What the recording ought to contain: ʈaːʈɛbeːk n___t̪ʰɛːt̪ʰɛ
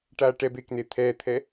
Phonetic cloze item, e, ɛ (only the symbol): e